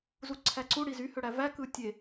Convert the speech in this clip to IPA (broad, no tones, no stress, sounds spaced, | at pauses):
z u ǀʰ æ ǀ u ɽ i z y h ø ɽ æ v æ k ɯ tʲ e